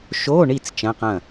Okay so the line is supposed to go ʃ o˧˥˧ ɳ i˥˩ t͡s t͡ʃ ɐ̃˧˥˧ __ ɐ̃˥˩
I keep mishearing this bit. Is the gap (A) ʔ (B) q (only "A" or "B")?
B